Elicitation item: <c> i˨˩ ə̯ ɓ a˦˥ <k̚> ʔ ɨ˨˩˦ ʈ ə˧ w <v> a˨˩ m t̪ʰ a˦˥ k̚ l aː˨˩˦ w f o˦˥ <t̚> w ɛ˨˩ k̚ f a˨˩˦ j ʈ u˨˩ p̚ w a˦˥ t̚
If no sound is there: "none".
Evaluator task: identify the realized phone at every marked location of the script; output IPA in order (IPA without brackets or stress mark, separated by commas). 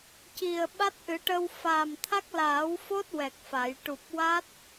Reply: c, t̚, f, t̚